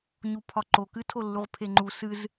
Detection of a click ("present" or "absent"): present